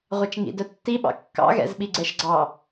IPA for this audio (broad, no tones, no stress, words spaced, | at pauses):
ʁʷɑt͡ʃŋḭdœ tːiɓɑ̰ kːɑ̰ɣɛ̰zɓi ɡ͡ǀɛʃɡ͡ǀɑ